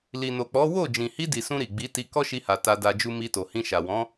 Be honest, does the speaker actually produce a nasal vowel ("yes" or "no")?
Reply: yes